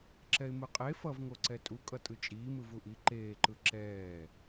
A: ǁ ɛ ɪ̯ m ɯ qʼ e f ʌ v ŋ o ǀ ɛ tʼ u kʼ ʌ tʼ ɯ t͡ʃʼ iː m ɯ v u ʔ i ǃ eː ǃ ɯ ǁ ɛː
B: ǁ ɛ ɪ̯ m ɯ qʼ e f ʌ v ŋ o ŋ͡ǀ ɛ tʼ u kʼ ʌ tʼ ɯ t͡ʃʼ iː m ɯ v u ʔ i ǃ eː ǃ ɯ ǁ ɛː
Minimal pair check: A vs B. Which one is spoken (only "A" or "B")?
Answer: A